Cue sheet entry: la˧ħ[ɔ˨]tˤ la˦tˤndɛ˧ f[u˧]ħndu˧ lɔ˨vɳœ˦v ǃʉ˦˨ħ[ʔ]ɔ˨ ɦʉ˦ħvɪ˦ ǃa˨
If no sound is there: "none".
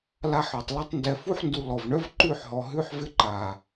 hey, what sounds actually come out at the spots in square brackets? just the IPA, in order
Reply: ɔ˨, u˦, ɦ

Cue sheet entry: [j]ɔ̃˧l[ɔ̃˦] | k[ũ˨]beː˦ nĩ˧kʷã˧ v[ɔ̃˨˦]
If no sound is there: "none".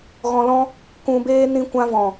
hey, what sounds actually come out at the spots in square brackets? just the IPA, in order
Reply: ɣ, ɔ̃˦, ũ˧, ɔ̃˨

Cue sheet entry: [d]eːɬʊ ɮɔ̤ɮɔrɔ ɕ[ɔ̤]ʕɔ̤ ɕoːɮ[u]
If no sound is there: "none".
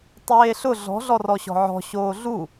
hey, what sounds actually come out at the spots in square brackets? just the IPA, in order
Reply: tˤ, ɔ̤, u

